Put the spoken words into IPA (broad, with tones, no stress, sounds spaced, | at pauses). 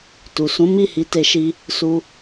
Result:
t u˨ s ũ˨˦ m i˦˨ h i˨˦ t e˧ ʃ i˧ | s u˦